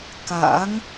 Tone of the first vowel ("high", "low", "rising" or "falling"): rising